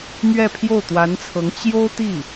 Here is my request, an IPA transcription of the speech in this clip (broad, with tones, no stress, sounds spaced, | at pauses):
m ɥ ɛ˥˧ pʰ j o˥˩ ʊ̯ t̪ w a˧˥ n t͡sʰ ɤ˧˥ ŋ t͡ɕ j o˥ ʊ̯ t̪ i˥˩